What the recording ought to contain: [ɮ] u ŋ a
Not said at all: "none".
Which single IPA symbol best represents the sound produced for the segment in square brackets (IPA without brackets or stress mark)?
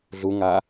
ɮ